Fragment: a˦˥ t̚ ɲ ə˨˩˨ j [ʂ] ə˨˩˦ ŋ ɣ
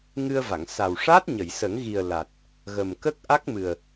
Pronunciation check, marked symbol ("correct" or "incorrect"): incorrect